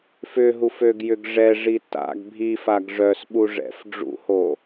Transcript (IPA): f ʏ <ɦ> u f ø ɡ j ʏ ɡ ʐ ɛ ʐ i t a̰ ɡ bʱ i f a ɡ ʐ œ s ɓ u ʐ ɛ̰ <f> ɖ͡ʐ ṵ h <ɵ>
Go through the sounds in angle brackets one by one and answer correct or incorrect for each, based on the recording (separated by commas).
correct, correct, incorrect